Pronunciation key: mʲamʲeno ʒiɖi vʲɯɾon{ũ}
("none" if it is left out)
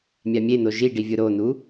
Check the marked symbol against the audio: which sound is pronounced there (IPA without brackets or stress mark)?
u